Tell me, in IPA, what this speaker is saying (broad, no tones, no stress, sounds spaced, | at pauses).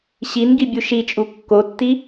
ɕ i n ɡ i bʲ u ʃ i t͡ʃʼ u kː o tː i